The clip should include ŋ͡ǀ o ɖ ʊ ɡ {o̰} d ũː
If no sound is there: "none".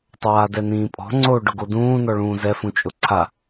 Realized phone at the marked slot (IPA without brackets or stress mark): o